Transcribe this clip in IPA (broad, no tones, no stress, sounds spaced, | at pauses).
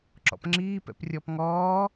ǁ ɔ̰ p ŋ͡ǁ iː p ɛ̰ p rʲ ɔː p ŋ ɔː